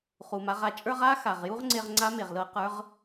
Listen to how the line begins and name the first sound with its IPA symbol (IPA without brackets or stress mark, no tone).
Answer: χ